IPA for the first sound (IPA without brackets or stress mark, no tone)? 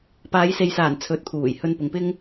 p